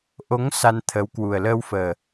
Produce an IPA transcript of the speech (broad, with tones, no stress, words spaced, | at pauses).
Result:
ʔo˨˦ŋ sa˧nt̪ʰə˨˦w kwu˨˩ə̯ləː˧wfəː˨˩